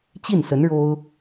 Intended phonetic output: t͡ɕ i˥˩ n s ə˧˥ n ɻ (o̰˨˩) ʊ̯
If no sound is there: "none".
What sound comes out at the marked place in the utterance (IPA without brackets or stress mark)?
o˥